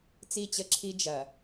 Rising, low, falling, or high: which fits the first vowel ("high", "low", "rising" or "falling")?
falling